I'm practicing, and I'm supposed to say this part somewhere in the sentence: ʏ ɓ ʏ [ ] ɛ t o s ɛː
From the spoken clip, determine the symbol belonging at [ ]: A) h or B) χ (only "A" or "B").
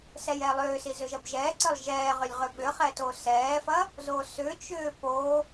B